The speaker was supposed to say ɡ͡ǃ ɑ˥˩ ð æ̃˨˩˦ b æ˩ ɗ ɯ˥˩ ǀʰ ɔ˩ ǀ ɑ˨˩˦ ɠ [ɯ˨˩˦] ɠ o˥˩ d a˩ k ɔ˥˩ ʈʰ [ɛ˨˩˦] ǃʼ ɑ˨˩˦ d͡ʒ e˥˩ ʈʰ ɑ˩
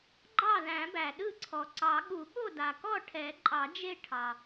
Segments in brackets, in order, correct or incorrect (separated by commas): incorrect, correct